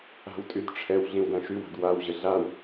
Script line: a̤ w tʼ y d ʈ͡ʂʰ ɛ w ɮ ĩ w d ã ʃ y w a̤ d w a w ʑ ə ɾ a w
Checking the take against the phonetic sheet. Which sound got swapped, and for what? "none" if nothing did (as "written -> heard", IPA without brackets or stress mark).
ɾ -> ɮ